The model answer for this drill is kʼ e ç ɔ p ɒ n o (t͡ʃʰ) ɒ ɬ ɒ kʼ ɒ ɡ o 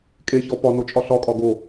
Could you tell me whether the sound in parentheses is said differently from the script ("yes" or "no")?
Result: yes